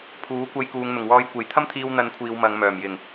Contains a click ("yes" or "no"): no